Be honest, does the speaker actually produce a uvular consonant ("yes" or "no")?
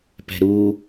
no